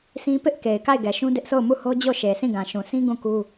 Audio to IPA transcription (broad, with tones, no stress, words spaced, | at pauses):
sĩ˦ pɪ˦ʔ ke˨ɪ̯ka˦˨ɪ̯ɡɛ˨ʃũ˦ dɪ˦ʔ sʰo˦˨ʊ̯mu˦˨ho˦d͡ʑo˦˨ ʃe˨sĩ˦˨ ɡã˨ʃũ˨sĩ˦ ɡũ˦˨ku˦